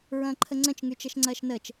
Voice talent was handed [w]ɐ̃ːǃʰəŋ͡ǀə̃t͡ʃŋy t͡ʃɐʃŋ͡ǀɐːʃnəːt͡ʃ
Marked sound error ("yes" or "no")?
yes